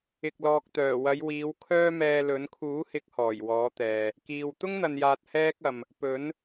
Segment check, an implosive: absent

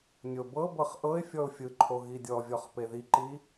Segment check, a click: present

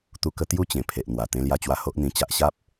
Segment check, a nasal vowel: present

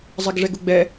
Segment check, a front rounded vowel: absent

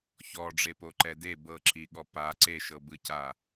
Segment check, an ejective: absent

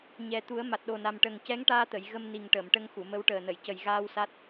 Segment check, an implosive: present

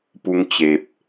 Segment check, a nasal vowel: absent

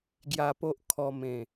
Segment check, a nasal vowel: present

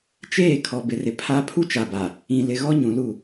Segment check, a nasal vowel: present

